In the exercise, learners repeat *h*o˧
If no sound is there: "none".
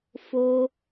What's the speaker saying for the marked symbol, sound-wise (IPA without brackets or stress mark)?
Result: f